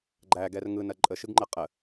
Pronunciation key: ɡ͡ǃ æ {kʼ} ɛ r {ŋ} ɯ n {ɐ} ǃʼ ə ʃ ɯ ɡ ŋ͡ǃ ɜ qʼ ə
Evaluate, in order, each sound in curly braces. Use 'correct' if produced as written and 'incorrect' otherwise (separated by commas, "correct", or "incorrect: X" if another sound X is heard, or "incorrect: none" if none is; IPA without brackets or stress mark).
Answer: incorrect: ɡ, correct, correct